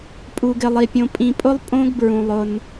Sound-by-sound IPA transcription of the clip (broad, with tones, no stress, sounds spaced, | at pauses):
pʼ u˨ ɡ ɪ˨ lˠ i˨ pʲ õ˨ pʼ ĩ˨ pʼ ʊ˦ lˠ pʼ õ˦ ɡ b ɹ ũ˨ lˠ ʊ˦ n